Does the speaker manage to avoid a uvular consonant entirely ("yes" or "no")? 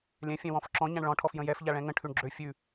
yes